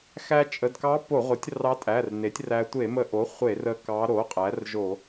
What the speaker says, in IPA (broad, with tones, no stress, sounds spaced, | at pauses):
x æ˧ t͡ʃʼ ə˩˧˩ d k ɑ˧˥ p o˧˩˧ ʁʷ ə˩˥ tʲ r ɑ˧˥ tʼ æ˩˧˩ r n e˩˥ tʲ r æ˧ tʷ e˧˩˧ m ə˧ ʔ o˩˥ χʷ e˧˩˧ r ə˧ k ɑ˧˥ ɾ o˩˥ qʼ æ˩˥ r ʒ o˧˩˧